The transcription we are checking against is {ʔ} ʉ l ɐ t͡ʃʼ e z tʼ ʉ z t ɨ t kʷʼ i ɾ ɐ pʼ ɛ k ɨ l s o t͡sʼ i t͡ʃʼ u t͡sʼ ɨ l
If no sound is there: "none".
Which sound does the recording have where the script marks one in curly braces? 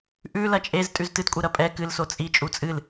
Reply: ʔ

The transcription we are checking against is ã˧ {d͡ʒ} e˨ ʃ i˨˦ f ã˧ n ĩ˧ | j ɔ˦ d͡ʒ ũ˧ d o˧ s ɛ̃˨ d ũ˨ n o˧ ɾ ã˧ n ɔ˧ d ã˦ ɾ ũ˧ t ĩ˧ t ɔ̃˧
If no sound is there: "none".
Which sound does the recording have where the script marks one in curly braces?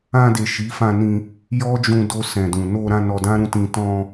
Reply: d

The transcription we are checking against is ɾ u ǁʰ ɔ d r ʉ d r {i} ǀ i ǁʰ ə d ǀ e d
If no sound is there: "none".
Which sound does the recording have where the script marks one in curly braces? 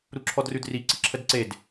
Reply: i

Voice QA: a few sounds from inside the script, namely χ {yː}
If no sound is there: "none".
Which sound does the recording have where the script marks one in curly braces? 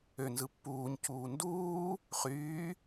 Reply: yː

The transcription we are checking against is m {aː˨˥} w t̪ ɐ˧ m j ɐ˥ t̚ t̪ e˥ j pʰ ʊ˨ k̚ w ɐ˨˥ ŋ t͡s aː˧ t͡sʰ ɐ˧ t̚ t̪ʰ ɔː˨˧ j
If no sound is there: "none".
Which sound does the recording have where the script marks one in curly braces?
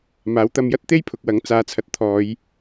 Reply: aː˨˥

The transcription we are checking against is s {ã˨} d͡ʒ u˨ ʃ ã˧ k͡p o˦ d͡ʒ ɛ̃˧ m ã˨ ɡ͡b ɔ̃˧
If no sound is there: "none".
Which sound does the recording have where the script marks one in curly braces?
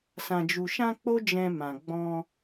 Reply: ã˨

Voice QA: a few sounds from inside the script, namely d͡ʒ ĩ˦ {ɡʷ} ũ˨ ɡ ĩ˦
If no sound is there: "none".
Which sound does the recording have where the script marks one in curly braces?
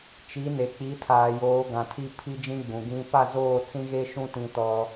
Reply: ɡ͡b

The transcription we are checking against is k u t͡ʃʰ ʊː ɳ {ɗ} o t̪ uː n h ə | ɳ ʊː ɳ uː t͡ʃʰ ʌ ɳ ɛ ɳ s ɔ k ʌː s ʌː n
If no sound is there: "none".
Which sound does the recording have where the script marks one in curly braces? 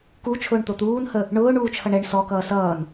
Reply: t̪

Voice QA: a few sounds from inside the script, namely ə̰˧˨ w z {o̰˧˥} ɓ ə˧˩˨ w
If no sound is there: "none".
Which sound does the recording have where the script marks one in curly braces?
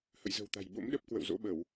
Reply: o̰˧˥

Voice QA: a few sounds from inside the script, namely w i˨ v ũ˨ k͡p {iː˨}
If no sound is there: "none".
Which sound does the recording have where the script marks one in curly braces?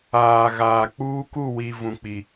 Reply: i˨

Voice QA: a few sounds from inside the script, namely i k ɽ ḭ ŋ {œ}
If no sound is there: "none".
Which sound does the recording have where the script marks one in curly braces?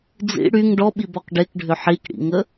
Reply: ə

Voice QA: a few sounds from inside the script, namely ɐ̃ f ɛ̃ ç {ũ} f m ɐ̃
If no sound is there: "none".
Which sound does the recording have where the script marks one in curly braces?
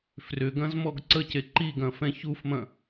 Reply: u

